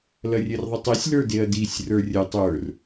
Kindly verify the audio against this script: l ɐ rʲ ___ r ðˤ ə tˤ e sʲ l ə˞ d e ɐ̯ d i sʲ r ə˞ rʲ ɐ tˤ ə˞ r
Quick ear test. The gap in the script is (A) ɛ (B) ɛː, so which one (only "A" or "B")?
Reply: A